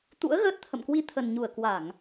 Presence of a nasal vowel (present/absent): absent